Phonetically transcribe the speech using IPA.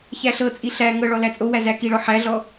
çæɬɤt͡sʼi ɬæ ŋɤɭɔ læt͡sʼowæ zækiɭɔ ħæɮɔ

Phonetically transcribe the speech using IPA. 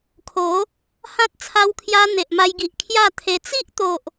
kʰo˨˦ | hã˦t̚ t͡sʰa˦wkʰja˦ n̪e˨ʔma˧jɡi˨ʔ kʰja˥˧t̪ʰe˧ t͡si˦ʔt̪o˨ʔ

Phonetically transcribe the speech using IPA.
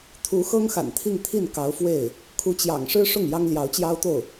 t̪ʰu˧˥xɤ˥ŋxa̰˨˩n t̪ʰi˥˧ŋt̪ʰi˥˩n kɑ˧˥ʊ̯fwe˥˩ɪ̯ | kʰu˧˥t͡ɕjɑ̰˨˩ŋ ʂɻ̩˥ʂʊ˥˩ŋ jɑ˥ŋljɑ˧˥ʊ̯t͡ɕjɑ˥ʊ̯t̪o˥˩ʊ̯

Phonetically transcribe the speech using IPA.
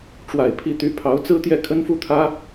ʈ͡ʂwa˨˩ɪ̯ pʰi˥˩t̪y˥ pʰɑ˧˥ʊ̯t͡sɹ̩˥t̪jɛ˥˩ kʰə˥nfu˥˩t̪ʰä˥

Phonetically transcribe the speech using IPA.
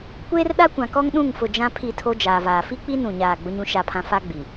kʷeː˦rɗa˦kʷã˨kɔ˦ŋ ɗũ˦˨ŋfʊ˨ d͡ʒã˦ pʰi˦˨ tʰo˦d͡ʒaː˨vaː˨ fi˦k͡pi˦ nũ˦˨ɲaː˦˨ ɡ͡bʊ˦ɲũ˦ʃa˦˨pʰã˦ fa˦ ɡ͡bi˨

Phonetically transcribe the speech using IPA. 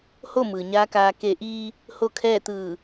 ho˥˨mɯː˩ ɲaː˧˥kaː˧ ke˧˩ ʔiː˧ | ho˥˨kʰɛː˥˨ t̪ɯː˧˩

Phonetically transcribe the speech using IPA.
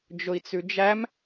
d͡ʒʊi̯t͡sʉd͡ʒæm

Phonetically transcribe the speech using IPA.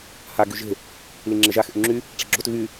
ha ɡyʒe̤ | liŋ͡ǁeʒax ʔyŋ͡ǁy | ʈ͡ʂi̤ɡ͡ǁot ɣy

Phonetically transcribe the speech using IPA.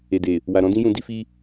e˨de˨ | wa˨ɾɔ̃˨˦dĩ˦jũ˧ di˧fi˧

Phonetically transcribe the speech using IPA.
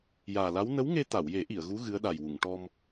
jaː˨˩la˧˥w nə˧˥wŋe˧t̪a˨˩˨wje˨˩˦ ʔi˨˩˨ə̯ɣu˧˥ ɣɨ˧˥ə̯ɗa˨˩jwu˨˩˨ŋ ʈɔ˧m

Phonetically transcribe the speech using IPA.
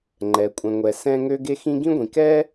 ŋ͡ǃɛ˨kʷʼɛ̃˨ŋʷɛ˨ sɛ̃˧ŋø˧ ɡe˧xĩ˧ ɡĩ˦ɡʷĩ˨ kɛ˦

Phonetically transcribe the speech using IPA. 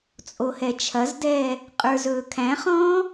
t͡sʼohɛt͡ʃʰɐzdɛː | qʼə˞zɵːkʰæ̃χɔ̃ː

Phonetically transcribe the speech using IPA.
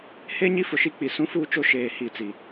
he˦ ɲi˦fʊ˨ʃi˦k͡pi˨ sũ˦fuː˦t͡ʃo˦ ʃeː˨hi˨ t͡si˨

